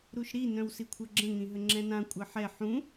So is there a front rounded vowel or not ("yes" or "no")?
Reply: yes